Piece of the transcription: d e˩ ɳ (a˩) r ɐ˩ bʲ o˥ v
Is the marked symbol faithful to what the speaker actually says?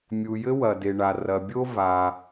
yes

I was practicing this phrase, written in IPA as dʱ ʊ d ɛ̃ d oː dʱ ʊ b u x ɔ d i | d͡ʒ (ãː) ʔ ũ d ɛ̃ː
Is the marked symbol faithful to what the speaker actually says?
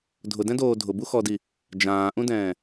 yes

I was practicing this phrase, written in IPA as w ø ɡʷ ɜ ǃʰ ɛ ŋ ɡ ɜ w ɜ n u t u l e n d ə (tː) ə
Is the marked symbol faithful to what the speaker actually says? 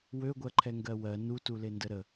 no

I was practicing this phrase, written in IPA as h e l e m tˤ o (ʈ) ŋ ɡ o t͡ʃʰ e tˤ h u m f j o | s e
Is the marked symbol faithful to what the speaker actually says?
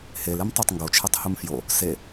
no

